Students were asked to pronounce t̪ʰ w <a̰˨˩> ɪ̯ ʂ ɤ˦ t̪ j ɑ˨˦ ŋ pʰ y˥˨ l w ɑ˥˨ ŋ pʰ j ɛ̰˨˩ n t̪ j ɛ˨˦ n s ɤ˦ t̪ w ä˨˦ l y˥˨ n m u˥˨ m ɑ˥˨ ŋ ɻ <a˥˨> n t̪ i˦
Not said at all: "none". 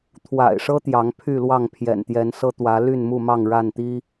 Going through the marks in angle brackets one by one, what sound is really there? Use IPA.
a̰˨˩, a˥˨

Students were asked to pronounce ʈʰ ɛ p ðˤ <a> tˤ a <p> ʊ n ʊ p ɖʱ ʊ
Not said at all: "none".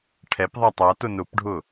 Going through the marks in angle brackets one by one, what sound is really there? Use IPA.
a, t

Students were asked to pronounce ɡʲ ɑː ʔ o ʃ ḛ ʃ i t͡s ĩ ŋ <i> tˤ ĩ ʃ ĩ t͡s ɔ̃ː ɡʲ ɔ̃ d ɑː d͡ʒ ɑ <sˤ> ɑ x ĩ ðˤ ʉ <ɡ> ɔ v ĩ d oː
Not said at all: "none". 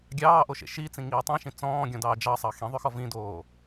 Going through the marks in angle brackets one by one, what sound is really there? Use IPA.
iː, sˤ, x

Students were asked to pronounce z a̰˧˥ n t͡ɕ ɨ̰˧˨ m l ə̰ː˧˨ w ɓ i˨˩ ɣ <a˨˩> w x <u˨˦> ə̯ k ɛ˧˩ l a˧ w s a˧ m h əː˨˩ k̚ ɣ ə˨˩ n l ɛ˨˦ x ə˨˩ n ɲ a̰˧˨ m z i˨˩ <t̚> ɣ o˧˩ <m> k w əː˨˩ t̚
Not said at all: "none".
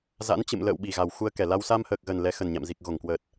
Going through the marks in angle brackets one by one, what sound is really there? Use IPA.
a˨˩, u˧, k̚, ŋ

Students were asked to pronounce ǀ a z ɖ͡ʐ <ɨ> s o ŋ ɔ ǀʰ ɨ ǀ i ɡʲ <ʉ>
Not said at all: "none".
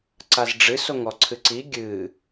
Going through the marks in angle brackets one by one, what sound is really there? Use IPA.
ɨ, ɨ

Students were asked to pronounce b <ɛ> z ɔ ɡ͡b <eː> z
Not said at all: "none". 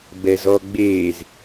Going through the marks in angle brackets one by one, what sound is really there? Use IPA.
ɛ, eː

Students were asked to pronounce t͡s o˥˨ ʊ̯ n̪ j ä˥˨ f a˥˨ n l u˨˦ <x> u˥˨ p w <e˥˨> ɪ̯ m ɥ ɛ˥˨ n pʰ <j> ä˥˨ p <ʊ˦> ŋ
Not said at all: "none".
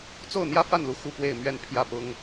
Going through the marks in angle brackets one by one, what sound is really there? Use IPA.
x, e˥˨, j, ʊ˦

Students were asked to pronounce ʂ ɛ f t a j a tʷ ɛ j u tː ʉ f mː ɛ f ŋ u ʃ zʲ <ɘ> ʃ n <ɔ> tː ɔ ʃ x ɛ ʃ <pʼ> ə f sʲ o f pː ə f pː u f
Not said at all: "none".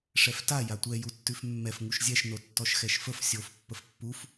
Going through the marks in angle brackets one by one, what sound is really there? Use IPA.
ɛ, o, f

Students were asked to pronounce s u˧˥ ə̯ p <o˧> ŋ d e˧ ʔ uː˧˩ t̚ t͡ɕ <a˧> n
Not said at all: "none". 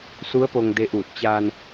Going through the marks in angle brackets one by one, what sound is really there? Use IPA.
o˧, aː˧

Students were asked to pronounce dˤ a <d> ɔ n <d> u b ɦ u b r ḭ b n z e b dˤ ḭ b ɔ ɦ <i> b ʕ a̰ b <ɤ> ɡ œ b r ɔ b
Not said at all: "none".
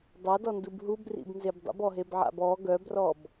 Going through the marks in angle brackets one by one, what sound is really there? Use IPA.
d, d, e, ɔ

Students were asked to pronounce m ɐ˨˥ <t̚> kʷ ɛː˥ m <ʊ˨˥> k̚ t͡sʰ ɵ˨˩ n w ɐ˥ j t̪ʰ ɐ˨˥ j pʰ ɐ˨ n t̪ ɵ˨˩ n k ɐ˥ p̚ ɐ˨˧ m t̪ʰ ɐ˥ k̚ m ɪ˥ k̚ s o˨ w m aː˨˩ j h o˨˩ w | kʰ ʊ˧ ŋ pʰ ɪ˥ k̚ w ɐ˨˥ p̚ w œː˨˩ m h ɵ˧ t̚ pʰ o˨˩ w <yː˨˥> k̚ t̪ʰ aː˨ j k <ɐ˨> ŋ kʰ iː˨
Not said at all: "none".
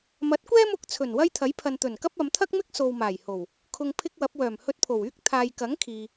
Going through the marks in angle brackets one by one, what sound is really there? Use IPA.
t̚, ʊ˧, yː˥, ɐ˨˥

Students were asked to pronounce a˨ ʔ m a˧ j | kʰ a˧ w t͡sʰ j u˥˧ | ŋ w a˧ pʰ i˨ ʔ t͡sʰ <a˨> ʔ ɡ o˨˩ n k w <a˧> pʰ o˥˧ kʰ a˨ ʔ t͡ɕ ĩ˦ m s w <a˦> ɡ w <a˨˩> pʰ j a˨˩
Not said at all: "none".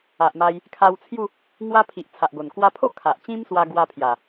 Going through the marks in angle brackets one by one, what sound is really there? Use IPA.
a˨, a˧, a˧, a˧

